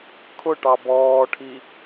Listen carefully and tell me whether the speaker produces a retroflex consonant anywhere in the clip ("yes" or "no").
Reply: yes